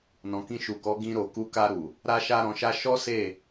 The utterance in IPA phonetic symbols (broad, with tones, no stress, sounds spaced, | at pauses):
n ɔ̃˨ k ĩ˧ ʃ u˨ k ɔ˨˦ ɡ ĩ˧ ɾ o˨ k u˧ k a˧ ɾ u˨ | ɾ a˦ ʃ a˦ ɾ ɔ̃˧ ʃ a˦ ʃ ɔ˦ s e˦˨